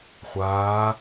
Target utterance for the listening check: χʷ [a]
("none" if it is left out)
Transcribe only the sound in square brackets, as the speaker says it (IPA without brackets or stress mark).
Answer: aː